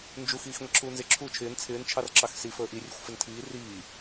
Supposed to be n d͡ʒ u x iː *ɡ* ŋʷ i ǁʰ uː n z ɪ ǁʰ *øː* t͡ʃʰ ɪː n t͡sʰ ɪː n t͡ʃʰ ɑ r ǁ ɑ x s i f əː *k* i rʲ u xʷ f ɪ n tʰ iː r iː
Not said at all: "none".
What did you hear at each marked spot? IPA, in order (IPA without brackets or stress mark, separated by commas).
x, uː, ʔ